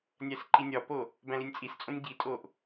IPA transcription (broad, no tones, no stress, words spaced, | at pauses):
nʲæsǃinʲɒpo | bæ̃linʲt͡sʼist͡sʼõnʲ ɟitʼoʔ